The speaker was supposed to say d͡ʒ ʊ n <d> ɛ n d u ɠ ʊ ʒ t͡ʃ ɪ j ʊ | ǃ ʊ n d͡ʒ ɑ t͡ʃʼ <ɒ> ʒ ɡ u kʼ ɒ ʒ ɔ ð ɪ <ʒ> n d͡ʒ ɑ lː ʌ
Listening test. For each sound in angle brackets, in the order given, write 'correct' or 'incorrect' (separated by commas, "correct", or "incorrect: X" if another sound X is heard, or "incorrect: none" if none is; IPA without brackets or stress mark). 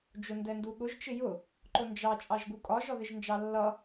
correct, incorrect: ɑ, correct